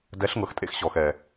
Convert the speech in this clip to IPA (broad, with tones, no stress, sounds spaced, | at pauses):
d ɛ˨˦ ɬ ŋ ɤ˨ x tʼ ḛ˦ x ɕ ɔ˨ x ɛ˨